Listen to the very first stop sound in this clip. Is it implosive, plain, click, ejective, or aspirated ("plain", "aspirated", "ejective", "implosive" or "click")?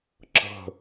click